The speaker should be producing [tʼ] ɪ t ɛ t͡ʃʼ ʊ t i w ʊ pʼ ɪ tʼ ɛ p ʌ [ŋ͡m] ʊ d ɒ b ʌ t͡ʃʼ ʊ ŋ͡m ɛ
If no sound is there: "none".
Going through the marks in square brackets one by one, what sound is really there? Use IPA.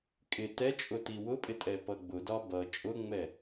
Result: kʼ, ɡ͡b

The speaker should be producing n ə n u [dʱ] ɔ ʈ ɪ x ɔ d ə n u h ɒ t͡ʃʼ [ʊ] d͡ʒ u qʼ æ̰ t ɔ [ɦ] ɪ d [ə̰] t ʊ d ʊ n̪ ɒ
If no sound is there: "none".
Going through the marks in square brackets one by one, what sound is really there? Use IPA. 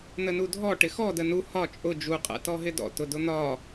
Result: dʱ, ʊ, ɦ, ɔ̰

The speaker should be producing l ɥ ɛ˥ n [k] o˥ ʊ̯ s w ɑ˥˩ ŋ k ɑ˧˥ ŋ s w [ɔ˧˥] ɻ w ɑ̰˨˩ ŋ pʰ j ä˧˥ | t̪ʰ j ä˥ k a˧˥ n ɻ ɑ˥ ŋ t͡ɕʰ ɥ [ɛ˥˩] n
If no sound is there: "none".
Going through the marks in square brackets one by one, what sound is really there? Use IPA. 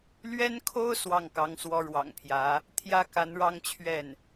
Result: kʰ, ɔ˧˥, ɛ˥˩

